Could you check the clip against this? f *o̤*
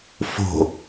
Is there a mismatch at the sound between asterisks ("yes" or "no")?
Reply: no